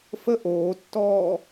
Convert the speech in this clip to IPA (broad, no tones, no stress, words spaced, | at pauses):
fə ʔoːtːɔː